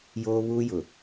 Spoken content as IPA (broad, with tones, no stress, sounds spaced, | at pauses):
j oː˦ β uː˦ j ʊ˨